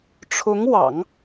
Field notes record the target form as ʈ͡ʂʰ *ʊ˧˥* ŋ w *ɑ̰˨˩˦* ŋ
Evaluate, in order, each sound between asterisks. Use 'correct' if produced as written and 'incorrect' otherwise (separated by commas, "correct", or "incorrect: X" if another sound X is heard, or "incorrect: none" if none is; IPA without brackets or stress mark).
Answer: correct, correct